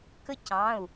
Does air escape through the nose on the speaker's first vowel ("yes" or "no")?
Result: no